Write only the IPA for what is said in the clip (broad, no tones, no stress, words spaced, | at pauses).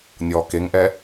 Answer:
nʲɔːkeŋʔɛ